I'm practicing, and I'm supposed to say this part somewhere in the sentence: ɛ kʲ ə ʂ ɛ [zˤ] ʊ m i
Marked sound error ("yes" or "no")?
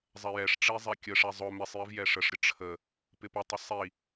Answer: no